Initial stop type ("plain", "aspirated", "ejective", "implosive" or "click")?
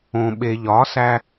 implosive